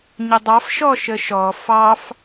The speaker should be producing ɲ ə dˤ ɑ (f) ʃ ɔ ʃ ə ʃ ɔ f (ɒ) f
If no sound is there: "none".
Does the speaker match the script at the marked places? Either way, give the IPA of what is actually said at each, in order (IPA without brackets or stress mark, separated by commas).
f, ɑ